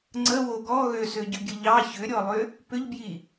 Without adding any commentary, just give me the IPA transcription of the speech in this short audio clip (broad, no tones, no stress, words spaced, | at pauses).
ŋ͡ǀəwo ɡɔ ɣøsøɟʏɡʲə ʎɑ çʏɾʲɔlˠʏ | pʏʎbji